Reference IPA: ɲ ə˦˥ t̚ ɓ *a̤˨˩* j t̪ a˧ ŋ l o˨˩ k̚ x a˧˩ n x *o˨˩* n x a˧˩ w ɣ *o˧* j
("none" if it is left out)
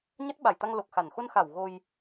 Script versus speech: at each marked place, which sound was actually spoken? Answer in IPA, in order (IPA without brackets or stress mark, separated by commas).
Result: a˧˩, o˧, o˧